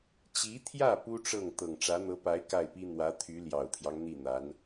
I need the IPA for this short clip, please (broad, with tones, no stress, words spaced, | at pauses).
t͡ɕi˧˥t̪ʰjä˥˩ pu˥ʈ͡ʂɤ˥˩ŋ t̪ɤ˨˩ŋʈ͡ʂä˧˥n̪ɤ˧˥pa˧˥ɪ̯ ka˥˩ɪ̯pi˥ n̪wä˧˥t̪ʰy˧˥ ljɑ˨˩ʊ̯t̪ʰjɑ˦ŋ n̪i˥˩n̪a˧˥n